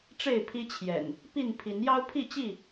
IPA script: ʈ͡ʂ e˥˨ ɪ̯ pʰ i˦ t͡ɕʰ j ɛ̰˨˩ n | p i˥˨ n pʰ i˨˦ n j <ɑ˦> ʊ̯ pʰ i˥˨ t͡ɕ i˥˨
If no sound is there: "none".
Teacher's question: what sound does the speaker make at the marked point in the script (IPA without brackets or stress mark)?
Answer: ɑ˦